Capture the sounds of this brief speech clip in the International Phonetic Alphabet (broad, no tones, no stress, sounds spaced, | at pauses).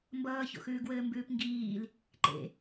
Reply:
m b ʌː ç o̰ x ʉː ɡ w ɘː m b ʉː p ŋ ɡ iː l | ǃ ḛ